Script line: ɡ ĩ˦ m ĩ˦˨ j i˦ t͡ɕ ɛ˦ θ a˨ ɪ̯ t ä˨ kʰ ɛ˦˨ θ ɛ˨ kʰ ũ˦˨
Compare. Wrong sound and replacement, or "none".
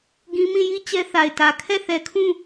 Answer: none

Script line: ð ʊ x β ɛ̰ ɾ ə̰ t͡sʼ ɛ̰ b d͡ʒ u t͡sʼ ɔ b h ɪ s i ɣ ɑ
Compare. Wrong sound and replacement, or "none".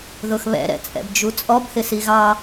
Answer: ə̰ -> ɛ̰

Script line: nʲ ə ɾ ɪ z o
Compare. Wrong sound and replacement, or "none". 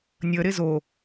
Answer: none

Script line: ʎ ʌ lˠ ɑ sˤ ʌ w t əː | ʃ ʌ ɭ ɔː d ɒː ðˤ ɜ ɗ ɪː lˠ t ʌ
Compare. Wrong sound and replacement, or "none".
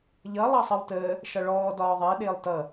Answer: none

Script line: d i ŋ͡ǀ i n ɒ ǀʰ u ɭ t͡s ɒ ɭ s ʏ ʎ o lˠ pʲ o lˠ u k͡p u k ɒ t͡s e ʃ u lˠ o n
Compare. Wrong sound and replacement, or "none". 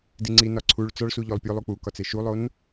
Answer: ʏ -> u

